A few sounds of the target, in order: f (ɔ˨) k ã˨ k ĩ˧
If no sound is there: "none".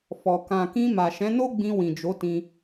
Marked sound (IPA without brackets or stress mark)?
ɔ˨